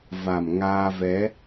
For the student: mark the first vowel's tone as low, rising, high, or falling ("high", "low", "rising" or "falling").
low